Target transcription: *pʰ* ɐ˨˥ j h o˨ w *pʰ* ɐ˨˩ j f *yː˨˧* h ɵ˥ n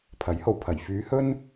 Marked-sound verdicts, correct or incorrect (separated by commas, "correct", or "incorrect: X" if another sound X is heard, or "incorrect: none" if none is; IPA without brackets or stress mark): correct, correct, correct